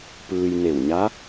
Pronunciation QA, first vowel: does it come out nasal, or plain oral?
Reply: oral